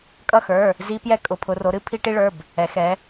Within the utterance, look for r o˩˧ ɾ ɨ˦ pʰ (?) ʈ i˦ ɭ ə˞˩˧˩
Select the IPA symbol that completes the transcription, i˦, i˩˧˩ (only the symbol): i˦